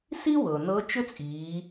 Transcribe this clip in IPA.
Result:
si˥wɤ˩ nɤ˧˥t͡ʃʏ˥t͡sʼiː˩˧

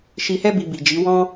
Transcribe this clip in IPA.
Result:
ʃi˧hɛ˦ bi˧bi˨d͡ʒi˨˦ wɔ̃˧

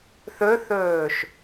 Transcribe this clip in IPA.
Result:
θɵθɵːʃ

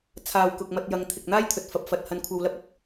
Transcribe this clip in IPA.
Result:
t͡sʰaː˨wkʊ˨k̚ mɐ˧t̚ jɐ˧ŋ t̪ʰɪ˨k̚n̪aː˥j t̪ʰɵ˧t̚fɐ˧p̚fɐ˧t̚ hɐ˨˧n kʷʰɐ˧wlɐ˥p̚ɐ˨k̚

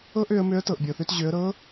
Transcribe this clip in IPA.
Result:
ɤ˥ʔø˩˧ə̯mø˧˥ə̯ tɤ˩ʔbʲɤ˩θø˧tʑø˩˧ə̯ ɾɤ˧˥

